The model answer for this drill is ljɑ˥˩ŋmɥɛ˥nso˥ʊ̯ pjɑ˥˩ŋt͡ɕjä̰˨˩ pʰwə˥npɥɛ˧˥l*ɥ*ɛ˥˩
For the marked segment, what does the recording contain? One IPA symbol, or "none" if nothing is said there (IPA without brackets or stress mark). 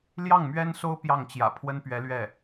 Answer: ɥ